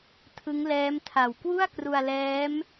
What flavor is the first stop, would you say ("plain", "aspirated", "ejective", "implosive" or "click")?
aspirated